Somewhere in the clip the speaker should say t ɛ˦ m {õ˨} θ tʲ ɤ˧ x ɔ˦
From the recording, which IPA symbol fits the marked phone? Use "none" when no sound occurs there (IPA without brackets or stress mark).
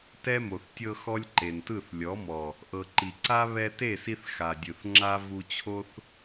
o˨